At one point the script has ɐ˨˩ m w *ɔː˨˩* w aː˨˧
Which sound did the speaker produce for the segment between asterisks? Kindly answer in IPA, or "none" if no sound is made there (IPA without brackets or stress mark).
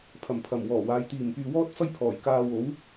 ɔː˨˩